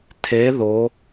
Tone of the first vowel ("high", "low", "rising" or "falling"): rising